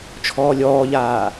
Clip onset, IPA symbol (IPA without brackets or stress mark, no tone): t͡ʃʰ